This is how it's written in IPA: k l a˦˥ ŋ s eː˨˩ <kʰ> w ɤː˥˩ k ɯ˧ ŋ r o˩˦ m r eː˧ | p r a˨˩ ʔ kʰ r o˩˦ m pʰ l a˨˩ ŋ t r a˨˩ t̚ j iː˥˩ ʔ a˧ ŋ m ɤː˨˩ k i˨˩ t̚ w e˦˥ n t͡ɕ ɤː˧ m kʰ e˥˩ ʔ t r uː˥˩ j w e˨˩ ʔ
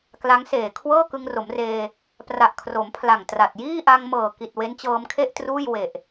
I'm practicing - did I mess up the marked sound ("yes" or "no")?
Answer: no